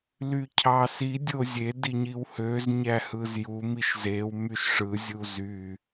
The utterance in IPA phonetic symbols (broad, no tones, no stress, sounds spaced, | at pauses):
l y cʰ ɑ s i dʲ o zʲ e d i ɲ i w h ø z ɲ æ h ɯ z j u m i ʃ z e w m y ʃ ʂ ɯ zʲ u z y